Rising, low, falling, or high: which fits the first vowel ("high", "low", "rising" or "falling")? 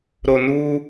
low